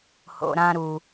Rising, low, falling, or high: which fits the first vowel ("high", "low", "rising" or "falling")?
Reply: low